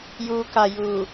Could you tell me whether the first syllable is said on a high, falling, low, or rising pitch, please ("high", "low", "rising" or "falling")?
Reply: low